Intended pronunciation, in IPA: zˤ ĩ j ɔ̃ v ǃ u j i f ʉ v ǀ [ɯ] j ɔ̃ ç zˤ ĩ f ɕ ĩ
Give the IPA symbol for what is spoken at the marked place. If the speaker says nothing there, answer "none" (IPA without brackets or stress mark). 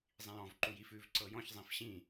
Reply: ɤ